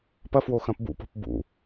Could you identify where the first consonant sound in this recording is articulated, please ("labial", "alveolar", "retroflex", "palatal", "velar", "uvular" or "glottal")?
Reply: labial